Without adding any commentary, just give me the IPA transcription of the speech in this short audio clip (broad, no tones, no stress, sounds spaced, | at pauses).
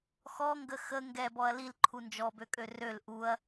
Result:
x ɔ ŋ ɡ ə x ə ŋ ɡ ɛ b ɔ ɐ̯ l i l ǃʰ u n d͡ʒ ɔ b ø kʼ ø r ø l ʔ u ɐ̯